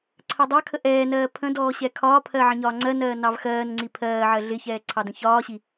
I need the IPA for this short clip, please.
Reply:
ǀʰ ɜ dˤ ɑ kʰ ə ʔ ɛː n ɜː pʰ ə̃ d ɔː ɕ ɛ kʰ ɒː pʰ ɜ ʕ ə̃ ɲ ɒː ŋ͡ǀ ɜ n ɜː n ɑ v x ɜː n ŋ͡ǀ i pʰ ɜː ʕ ɜ ɮ ɪ ç ɛː ǀʰ ɑ d ə̃ ç ɒː ɕ i

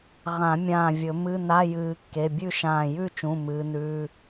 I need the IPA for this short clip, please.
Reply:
ʁ ã˨˩˦ mʲ ãː˧˩ vʲ ɵ˨˩˦ m ɨ˧˥˧ n a˧˥˧ j ɨː˨˩˦ kː e˩˧˩ bʲ ʉ˥˨ ʃ ãː˧˩ j ʉ˥˨ t͡ʃ ũ˩˧˩ m ɨː˨˦ n ʉː˩˧˩

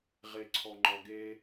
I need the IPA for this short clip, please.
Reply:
ʁ e ǀʰ ɔ ŋ͡ǃ ɔ ɡ e

